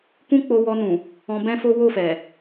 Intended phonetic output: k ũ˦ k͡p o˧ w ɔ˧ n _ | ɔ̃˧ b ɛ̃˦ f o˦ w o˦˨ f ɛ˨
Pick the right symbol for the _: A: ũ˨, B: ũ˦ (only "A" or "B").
A